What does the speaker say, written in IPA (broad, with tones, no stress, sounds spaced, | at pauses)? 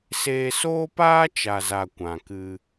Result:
s eː˧ s oː˦ p aː˦ t͡ʃ a˨ z a˨ kʷ ã˨ k ɨ˧